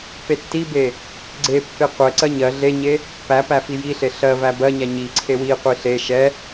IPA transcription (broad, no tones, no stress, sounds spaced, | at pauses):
p e tː i b e | ɡ͡ǀ e pː e qʷ ɛ ǀ ɜ ɲ ɜ ɮ e ɲ e | p æ p æ f i j i ɬ e ɬ ɜ v æ b ɜ ɲ æ ɲ i ǀʰ e w i qʷ i ɬ e ʃ ɛ